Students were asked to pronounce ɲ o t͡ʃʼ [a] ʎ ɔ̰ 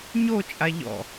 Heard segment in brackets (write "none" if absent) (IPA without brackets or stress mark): a